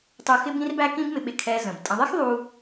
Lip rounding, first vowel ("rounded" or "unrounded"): rounded